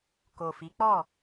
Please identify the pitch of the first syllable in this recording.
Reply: low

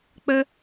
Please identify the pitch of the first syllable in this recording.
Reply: high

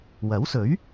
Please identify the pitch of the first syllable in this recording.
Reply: rising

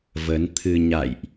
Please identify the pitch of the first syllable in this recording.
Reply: rising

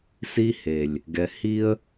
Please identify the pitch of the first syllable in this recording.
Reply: high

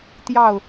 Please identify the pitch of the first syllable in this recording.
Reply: falling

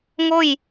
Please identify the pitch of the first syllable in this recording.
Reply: falling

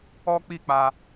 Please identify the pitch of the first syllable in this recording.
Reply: high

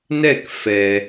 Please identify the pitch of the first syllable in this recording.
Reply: falling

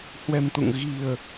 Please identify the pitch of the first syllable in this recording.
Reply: low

